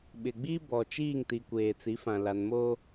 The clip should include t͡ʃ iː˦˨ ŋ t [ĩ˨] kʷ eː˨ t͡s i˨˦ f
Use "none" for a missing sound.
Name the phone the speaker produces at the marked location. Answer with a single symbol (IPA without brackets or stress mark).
i˨